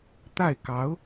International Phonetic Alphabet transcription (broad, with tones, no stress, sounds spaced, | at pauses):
t̪ a˥˩ ɪ̯ k ɑ˧˥ ʊ̯